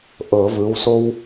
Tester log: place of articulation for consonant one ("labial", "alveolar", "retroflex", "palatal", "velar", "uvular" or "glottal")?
glottal